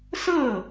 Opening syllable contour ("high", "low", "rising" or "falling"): falling